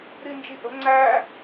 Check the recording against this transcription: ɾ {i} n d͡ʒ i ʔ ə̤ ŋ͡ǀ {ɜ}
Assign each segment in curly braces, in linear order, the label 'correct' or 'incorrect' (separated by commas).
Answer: correct, incorrect